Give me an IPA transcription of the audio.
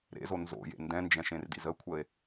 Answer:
ɾ ḛ z o n z o̰ j ḛ n d ɛ̃ n d͡ʒ ɛ̃ ʃ ẽ r d ḭ z ə kʷʰ ə e̯

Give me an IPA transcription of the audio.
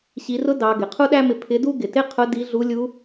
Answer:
ɕ i˩˧ r ʊ˧˥ d ɑ˩˧ ɡ ɪ˩ qʰ u˥ ɗ æ˥ m ɪ˧ pʰ ɪ˧˥ d u˥ ɡ ɪ˩ t ɪ˥ qʰ ʊ˧˥ d i˧˥ ɮ u˧˥ lʲ u˧˥

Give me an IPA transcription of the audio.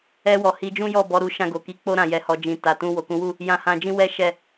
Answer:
ɛ˧ w ɔ˨ h i˨˦ d͡ʒ ũ˦ j ɔ˦˨ b ɔ˨˦ ɾ u˧ ʃ ã˧ ɡ o˨ k i˧ k͡p o˦ ɾ ã˦˨ j ɛ˧ h ɔ˧ d͡ʒ ĩ˨ t a˨ t ũ˧ w o˨ k ũ˨˦ w u˦˨ | j ã˧ h ã˧ d͡ʒ ĩ˦ w ɛ˦ ʃ ɛ˦˨

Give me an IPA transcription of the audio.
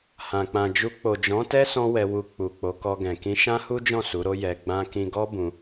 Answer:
h ã˨ k͡p ã˨ d͡ʒ u˧ k͡p o˨ d͡ʒ ɔ̃˨˦ t ɛ˦ s ɔ̃˦ w ɛ˧ w u˧ k͡p u˨ k͡p o˨˦ k ɔ˧ ɡ ɛ̃˨ k ĩ˧ ʃ ã˦ h u˦ d͡ʒ ɔ̃˦˨ s u˨˦ ɾ o˦ j ɛ˧ ɡ͡b ã˦ k ĩ˦ ɡ ɔ˦ b ũ˧

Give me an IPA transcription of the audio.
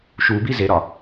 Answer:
ʃ u b i z e ɾ ɒ

